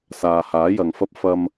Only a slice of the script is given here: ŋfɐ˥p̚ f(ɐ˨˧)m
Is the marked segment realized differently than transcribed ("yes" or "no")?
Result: yes